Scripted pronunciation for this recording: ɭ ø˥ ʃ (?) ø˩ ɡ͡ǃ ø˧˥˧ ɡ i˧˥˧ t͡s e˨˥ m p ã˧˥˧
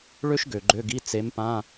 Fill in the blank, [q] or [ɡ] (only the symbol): ɡ